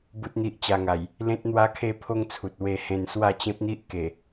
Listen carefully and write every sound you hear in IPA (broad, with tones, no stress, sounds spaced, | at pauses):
b u˦ t̚ n̪ i˦ ʔ t͡ɕ a˧ ŋ a˨˩ j | l ẽ˦ t̚ n̪ w a˦ kʰ e˦ pʰ o˦ ŋ t͡sʰ u˨ t̚ w e˧ h ẽ˧ n s w a˥˧ t͡ɕ ẽ˦ p̚ n̪ i˦ ʔ k e˨˩